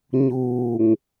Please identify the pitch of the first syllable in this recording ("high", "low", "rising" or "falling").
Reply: low